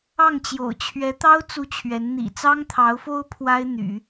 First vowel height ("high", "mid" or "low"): low